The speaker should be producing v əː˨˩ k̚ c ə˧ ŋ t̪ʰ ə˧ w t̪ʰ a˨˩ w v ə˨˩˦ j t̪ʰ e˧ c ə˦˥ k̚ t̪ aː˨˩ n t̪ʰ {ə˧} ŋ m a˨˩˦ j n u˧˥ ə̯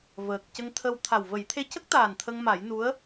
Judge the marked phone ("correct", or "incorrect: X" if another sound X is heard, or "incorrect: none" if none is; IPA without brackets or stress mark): correct